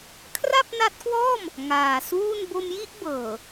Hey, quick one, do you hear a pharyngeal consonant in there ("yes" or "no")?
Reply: no